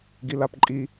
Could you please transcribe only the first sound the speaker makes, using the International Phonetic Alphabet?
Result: ɡ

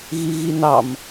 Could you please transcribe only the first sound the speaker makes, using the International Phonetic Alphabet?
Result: ɣ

